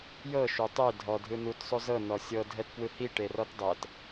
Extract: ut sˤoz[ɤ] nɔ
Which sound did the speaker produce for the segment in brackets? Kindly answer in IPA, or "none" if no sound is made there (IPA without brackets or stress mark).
ɤ